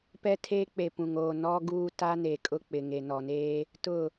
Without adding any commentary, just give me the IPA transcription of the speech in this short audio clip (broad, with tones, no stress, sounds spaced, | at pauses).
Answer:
p ɛ˦ tʰ eː˦ k͡p e˨ p ũ˨ ŋ oː˨ n ɔ˦ ɡ uː˦ t a˦ n e˨ kʼ ʊ˦ k͡p ɪ˨ ŋ e˨ n ɔ˨ n eː˦ | t ʊ˦˨